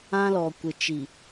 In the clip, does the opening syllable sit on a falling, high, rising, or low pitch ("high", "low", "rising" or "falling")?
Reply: high